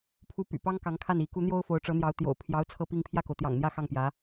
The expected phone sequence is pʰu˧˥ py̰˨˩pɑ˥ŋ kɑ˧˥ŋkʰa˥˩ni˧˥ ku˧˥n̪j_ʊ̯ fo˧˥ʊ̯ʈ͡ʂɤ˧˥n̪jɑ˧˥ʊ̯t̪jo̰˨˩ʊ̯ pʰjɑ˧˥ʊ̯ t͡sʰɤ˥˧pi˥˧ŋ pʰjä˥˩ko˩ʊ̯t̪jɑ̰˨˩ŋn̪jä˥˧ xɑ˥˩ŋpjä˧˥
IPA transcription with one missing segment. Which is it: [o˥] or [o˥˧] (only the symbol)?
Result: o˥